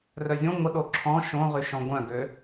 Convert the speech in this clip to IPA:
rœzʲõ ŋʷəɗo ǁʰɔ̃ ʃõʁyʃɔ̃ ɡʷœ̃ɡø

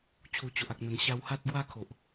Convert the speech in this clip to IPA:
t͡ɕʰu˨˩t͡ɕo˨ʔa˨k̚n̪ə˨˩n ɕa˧wha˦t̚ ɡwa˦kʰo˨ʔ

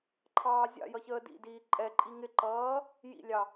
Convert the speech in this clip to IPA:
ǃʰɑːzʲɑ̰jʌ çəːdḭdiː ǃʼɛǃʼi ŋɪǃʌː | jḭlʲɑ

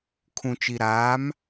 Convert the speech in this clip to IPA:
kʰũ˨t͡ʃi˨ɾaː˨˦m

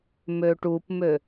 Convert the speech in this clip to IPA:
møʈupmø

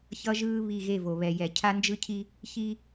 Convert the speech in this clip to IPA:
çʌ˦ʒɯː˦ βi˦˨ɣe˦˨vo˨ βɛ˨jɛ˨ cʰa˦nd͡ʒɯ˦cʰi˦ | çi˦

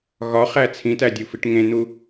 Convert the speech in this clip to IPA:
ɣɒχæ t͡sʰĩtædʲufiʈ ŋẽn̪u

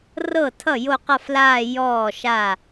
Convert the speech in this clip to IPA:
rɤ˥˩tʰʌ˥˩ jo˥˧qʌ˥˧flaː˥˧ jɔː˥˩ʃa˥˩

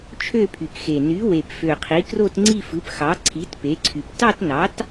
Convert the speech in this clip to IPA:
t͡ʃʰø˥˧pʰy˨˩kxe˨˩ ny˩˥ we˨˩pfø˨˩qʰi˩˥ kro˥˧tŋ͡ǀi˥˧ fɯ˩˥pxɑ˩˥ǀʰi˩˥t pe˩˥ǀʰy˨˩p tɑ˥˧tnɑ˩˥t

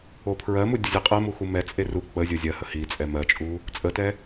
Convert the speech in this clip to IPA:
opʰɹɜmu dʲəzʲɛqʼɜmu xumɛt͡sʼe ru k͡pə zʲozʲɜhə hi t͡sʼɛmɜt͡ʃʼu | t͡sʼətɛ

